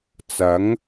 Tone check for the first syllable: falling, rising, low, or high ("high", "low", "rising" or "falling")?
rising